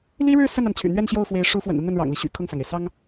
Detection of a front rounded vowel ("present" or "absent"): present